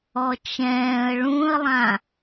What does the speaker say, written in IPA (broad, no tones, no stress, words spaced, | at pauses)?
ɔt͡ʃɛ̃ːə̯ ɭũə̯lˠã